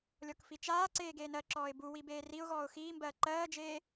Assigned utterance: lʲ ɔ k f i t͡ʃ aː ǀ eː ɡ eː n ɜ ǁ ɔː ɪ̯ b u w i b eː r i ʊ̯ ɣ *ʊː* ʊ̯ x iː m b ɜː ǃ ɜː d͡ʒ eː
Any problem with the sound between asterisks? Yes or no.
yes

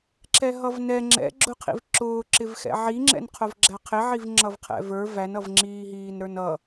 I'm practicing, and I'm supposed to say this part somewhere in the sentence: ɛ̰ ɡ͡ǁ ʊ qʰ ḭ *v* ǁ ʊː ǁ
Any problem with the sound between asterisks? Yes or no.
no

